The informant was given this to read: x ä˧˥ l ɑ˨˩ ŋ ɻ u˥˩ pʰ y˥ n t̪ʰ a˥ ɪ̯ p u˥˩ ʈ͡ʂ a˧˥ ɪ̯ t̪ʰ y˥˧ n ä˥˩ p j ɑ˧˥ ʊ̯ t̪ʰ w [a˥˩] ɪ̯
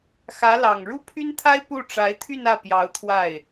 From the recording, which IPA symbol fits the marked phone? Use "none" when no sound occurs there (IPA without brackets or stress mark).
a˥˩